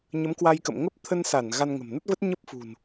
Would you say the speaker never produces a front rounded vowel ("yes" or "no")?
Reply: yes